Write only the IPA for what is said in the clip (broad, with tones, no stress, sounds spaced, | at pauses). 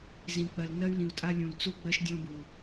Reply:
z ĩ˨ k͡p ɜ˨ l n ɜ˦ y̯ l ĩ˨ u̯ tʼ a˦ lʲ ũ˨ l t͡s u˦ ɡ͡b ɜ˦ ʃ dʲ ɔ̃˦ b u˨